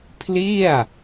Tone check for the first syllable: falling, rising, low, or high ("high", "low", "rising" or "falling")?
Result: falling